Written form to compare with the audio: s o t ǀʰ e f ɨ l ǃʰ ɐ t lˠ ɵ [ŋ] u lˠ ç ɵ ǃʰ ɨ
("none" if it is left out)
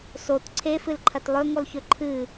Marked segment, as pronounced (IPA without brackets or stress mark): ŋ